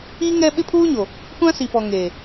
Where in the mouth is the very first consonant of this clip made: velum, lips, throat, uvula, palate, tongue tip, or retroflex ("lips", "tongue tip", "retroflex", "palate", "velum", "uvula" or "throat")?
velum